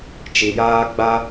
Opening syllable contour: low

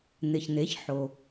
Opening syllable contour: low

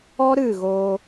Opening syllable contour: high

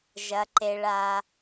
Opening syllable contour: low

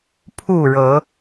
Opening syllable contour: falling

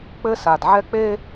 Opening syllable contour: high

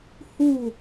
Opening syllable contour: falling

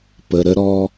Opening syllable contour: low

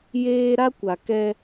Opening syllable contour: high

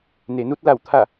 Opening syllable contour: low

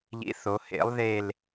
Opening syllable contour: rising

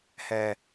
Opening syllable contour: low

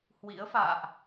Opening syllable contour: rising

